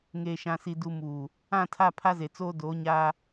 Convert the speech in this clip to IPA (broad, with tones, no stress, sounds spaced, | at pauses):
ŋ eː˨ ʃ ã˨ s i˨ d u˨ m uː˨ | ã˦˨ tʰ a˦˨ pʰ a˦ z e˨ t͡s oː˦ d oː˨˦ ɲ aː˦